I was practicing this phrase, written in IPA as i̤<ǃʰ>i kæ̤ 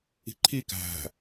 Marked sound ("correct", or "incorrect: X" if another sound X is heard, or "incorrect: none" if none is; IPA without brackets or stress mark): correct